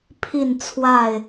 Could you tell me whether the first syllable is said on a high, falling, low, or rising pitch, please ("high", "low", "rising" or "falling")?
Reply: falling